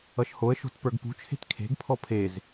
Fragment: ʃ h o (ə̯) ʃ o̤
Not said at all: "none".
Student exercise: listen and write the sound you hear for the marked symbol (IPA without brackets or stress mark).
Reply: ə̯